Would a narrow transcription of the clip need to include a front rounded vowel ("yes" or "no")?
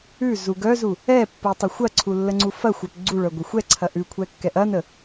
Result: yes